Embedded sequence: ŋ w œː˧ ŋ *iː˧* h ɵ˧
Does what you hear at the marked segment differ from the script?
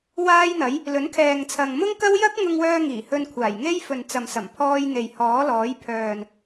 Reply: yes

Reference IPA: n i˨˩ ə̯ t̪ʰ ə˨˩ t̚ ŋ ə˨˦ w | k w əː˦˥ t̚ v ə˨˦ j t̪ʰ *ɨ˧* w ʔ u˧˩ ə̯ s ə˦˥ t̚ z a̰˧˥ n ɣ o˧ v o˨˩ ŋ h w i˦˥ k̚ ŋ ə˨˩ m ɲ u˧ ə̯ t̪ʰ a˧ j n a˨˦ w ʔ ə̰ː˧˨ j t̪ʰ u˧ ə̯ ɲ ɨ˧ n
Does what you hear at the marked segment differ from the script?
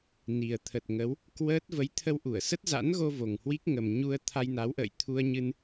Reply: yes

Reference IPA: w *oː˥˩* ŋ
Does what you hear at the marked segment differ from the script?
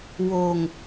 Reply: yes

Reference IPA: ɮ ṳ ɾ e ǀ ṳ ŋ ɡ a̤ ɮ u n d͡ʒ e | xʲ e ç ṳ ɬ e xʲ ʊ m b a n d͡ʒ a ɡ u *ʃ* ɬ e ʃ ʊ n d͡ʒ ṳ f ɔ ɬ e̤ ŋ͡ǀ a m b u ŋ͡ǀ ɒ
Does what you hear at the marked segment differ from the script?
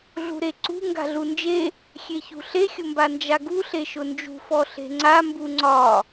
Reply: yes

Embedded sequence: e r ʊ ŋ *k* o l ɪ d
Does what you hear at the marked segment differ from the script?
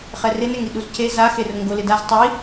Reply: yes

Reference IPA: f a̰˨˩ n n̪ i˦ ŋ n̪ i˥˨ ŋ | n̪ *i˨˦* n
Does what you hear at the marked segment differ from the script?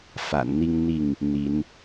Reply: no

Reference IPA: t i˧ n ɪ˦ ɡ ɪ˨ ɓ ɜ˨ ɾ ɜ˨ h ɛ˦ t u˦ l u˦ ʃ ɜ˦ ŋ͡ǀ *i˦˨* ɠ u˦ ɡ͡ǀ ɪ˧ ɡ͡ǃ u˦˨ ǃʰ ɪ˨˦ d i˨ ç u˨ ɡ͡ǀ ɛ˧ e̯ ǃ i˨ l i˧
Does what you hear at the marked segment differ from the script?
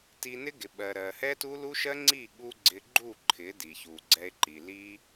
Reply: no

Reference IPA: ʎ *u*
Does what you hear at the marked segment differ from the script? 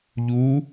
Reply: no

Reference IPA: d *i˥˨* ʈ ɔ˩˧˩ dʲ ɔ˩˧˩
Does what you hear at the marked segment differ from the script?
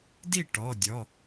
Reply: no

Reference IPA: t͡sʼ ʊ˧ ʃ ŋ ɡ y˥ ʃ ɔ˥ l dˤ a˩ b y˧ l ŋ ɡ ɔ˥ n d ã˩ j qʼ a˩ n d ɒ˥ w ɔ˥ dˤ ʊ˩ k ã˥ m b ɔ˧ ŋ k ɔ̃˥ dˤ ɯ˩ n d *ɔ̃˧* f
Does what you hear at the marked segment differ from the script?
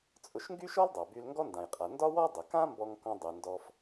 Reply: yes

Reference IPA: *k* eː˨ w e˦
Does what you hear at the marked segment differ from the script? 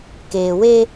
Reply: no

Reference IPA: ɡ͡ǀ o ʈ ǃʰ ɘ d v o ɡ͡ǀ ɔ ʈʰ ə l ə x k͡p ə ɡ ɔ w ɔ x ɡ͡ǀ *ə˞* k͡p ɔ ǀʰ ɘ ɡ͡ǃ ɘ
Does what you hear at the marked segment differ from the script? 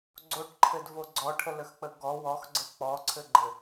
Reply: yes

